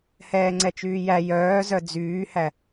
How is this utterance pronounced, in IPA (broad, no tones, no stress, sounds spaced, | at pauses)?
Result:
h ɛː ŋ͡ǀ ɛ t͡ʃ yː j æ j œː z œ d͡z yː h æ